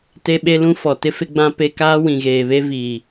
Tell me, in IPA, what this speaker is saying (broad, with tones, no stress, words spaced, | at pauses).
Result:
te˦ɓe˦lũ˦fɔ˨ tɪ˦fɪ˦ɡ͡bã˦ pe˦ kaː˦wĩ˨ɣeː˨βe˦ viː˨